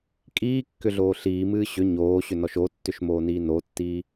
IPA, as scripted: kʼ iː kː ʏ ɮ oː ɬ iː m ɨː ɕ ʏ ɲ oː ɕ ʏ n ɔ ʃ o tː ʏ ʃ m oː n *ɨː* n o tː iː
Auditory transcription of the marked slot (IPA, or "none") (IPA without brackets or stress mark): iː